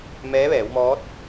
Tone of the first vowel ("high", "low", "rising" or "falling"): rising